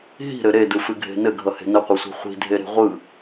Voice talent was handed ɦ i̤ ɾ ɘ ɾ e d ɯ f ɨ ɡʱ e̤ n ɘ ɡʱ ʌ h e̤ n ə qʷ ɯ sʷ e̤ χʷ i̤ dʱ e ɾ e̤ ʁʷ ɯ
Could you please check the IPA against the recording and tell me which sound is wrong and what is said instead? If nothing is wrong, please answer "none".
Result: none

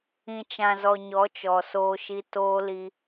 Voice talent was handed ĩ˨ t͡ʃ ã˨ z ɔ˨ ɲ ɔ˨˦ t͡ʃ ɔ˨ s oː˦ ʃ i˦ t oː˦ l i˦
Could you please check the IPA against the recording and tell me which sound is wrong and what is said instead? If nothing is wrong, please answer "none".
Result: none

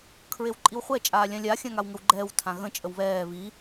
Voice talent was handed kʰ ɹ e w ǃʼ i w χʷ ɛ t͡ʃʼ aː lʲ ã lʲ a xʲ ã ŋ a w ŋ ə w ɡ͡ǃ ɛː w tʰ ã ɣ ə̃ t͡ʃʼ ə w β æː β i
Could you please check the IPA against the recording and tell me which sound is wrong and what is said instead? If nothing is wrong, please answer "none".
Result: æː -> ɛː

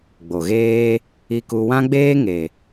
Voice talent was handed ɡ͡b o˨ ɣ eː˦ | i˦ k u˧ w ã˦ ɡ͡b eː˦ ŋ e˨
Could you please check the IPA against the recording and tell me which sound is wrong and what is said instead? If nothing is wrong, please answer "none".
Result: i˦ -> i˧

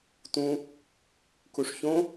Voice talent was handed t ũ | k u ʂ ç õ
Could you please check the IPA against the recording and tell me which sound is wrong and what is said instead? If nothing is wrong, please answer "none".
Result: none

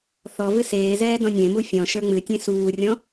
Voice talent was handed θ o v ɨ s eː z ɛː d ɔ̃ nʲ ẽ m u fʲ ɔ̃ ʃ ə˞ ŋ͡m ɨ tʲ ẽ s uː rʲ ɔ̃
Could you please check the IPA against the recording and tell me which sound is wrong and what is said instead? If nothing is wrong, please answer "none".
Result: o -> ɔ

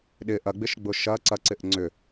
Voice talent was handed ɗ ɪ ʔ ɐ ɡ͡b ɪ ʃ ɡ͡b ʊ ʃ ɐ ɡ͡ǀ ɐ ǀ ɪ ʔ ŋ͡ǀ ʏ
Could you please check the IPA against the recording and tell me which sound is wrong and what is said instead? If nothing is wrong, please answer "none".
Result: ɡ͡ǀ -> ǀ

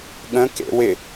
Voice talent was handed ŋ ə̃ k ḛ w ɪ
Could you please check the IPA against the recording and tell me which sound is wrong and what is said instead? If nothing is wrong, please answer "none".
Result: ŋ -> ɠ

